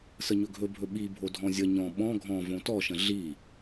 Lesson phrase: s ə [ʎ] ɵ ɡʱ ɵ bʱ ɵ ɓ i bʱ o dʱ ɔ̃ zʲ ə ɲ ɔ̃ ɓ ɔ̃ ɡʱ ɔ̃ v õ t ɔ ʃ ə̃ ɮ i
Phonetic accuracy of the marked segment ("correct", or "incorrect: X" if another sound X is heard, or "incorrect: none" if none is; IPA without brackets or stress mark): incorrect: ɲ